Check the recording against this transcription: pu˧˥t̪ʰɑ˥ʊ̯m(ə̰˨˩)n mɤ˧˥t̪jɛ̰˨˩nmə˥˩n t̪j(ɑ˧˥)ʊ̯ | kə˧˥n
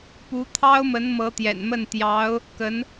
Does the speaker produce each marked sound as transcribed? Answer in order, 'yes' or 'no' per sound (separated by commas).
no, yes